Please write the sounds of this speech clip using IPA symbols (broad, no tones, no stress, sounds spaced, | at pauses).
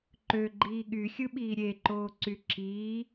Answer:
ǃ ø ɡ͡ǃ iː ɠ y xʲ ɯ ɓ iː ɾʲ e ǃ oː ǀ y ǁ i